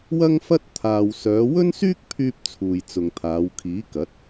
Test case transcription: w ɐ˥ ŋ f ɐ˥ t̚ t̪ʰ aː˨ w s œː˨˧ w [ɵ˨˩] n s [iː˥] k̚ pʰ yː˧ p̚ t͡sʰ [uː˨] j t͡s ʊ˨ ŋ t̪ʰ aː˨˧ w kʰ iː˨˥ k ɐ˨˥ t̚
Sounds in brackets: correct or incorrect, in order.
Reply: incorrect, incorrect, correct

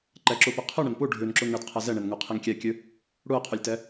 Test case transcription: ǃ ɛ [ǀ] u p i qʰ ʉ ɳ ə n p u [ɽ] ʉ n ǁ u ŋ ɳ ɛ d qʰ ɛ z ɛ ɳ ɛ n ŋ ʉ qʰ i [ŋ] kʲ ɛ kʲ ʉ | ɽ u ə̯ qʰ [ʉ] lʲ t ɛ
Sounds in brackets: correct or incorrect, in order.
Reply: incorrect, incorrect, correct, correct

